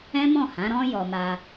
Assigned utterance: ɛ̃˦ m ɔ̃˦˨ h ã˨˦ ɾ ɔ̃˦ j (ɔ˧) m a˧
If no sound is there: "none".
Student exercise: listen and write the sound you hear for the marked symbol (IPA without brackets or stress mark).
ɔ˧